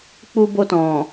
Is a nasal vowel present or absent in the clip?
present